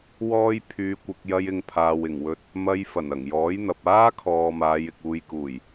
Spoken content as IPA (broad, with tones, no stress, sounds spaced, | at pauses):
w ɔː˥ j pʰ yː˨ kʷ ɪ˨ k̚ j ɐ˧ j ɪ˧ ŋ pʰ aː˨ w ɪ˨˩ ŋ w ɵ˧ t̚ | m ɐ˧ j f ɐ˨˩ n ɐ˨˩ ŋ j ɔː˨˥ j n̪ ɐ˨ p̚ aː˥ kʰ ɔː˨ m aː˨˧ j ɪ˨ k̚ uː˨ j k uː˨˩ j